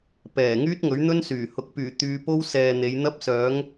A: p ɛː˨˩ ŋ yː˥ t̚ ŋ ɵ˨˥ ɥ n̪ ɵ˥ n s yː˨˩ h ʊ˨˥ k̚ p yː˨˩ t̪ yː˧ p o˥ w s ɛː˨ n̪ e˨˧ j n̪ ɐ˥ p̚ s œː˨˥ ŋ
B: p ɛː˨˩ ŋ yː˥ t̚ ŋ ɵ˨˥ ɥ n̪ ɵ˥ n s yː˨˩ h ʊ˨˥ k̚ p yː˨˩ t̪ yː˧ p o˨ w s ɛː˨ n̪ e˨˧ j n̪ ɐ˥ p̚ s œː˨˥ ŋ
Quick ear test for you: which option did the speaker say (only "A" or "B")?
A